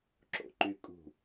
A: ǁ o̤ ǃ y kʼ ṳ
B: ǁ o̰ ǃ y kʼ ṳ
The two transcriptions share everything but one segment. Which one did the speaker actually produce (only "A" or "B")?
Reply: B